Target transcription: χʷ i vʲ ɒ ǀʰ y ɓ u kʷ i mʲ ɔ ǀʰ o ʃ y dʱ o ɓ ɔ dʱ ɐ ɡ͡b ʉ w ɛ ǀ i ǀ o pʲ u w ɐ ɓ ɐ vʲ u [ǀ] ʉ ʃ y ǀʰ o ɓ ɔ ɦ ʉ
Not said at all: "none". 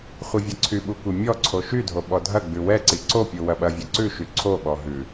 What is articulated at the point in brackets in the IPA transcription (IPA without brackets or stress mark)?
ǀ